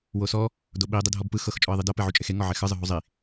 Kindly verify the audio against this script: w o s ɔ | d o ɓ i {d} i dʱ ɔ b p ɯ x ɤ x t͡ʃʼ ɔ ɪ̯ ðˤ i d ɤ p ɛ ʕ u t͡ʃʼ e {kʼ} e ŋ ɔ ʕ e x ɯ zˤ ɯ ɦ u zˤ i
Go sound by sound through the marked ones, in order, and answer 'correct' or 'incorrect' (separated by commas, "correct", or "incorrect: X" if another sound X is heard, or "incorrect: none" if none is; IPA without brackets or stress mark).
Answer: incorrect: dˤ, incorrect: x